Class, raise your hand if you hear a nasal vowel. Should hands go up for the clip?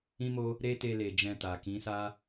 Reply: yes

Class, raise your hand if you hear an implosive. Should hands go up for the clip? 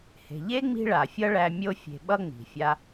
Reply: yes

